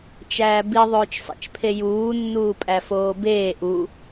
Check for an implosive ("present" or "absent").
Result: absent